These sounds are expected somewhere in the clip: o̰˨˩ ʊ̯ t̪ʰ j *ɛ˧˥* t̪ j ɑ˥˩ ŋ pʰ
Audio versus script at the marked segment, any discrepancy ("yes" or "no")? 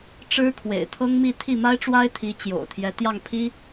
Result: no